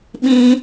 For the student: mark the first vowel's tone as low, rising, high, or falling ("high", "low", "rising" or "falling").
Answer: high